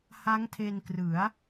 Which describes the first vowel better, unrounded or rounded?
unrounded